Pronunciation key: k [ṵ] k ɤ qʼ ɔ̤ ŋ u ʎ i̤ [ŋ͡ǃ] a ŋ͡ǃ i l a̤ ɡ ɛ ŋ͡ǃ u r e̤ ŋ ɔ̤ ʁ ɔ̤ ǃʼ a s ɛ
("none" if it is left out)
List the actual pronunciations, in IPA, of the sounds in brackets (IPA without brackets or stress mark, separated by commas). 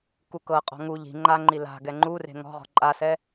u, ŋ͡ǃ